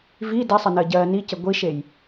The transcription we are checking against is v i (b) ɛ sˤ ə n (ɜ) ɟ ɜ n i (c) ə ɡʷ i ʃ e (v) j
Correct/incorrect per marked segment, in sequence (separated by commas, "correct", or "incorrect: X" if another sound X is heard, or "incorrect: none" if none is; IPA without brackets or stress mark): incorrect: d, correct, correct, incorrect: none